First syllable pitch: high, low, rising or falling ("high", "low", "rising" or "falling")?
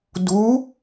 rising